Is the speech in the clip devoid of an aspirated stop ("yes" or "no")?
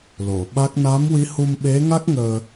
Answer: yes